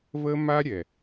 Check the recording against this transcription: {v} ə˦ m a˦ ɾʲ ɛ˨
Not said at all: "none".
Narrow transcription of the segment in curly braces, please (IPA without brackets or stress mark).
v